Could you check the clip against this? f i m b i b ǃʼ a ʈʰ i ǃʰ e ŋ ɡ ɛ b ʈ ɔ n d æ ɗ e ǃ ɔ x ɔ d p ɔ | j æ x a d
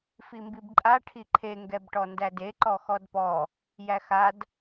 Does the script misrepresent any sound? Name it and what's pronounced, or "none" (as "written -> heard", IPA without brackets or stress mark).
ɗ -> d